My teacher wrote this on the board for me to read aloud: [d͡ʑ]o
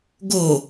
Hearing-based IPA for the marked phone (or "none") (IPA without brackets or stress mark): ɡ